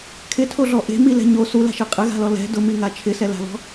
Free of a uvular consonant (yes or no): no